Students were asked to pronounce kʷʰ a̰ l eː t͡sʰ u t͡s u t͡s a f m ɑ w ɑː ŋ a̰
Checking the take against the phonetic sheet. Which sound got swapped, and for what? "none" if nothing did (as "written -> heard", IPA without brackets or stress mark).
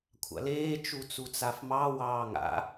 t͡sʰ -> t͡ʃ